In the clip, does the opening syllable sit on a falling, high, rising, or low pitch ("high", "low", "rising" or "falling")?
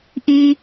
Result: high